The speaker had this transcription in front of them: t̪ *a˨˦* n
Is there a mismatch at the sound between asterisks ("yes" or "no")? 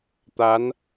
no